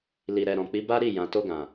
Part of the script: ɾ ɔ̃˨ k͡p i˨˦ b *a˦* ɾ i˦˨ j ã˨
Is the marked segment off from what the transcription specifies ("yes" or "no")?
no